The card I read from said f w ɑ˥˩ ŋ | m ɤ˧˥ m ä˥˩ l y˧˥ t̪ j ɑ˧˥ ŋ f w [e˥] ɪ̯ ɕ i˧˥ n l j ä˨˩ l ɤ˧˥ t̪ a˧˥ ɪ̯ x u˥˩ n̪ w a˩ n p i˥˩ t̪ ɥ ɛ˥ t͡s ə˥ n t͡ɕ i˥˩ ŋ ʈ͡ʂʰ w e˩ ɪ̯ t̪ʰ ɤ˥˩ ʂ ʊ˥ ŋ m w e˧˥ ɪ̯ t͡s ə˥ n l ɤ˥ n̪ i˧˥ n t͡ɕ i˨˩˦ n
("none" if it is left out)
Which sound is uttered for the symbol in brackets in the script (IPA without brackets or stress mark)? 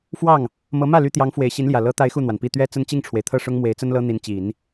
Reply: e˨˩